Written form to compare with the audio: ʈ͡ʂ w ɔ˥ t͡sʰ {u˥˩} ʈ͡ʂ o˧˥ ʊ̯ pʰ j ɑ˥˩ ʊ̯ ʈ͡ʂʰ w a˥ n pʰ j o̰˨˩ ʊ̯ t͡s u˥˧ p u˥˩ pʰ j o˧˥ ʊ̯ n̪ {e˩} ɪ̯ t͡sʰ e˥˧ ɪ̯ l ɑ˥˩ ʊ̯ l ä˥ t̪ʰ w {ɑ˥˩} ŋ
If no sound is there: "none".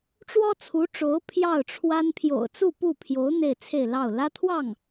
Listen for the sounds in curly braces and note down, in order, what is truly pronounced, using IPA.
u˧˥, e˥˧, ɑ˥˩

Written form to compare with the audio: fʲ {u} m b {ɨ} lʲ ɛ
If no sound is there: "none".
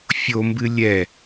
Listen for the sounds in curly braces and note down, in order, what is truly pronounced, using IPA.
o, ɨ

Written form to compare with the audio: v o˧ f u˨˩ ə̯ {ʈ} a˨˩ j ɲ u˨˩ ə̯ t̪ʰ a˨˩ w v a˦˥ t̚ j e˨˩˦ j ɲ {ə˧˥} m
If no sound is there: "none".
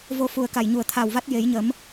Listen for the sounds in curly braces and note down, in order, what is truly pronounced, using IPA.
k, ə˨˩˦

